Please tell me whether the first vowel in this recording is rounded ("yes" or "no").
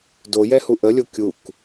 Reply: yes